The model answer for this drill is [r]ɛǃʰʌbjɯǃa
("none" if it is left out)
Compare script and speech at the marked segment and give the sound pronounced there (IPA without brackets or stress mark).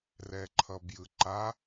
r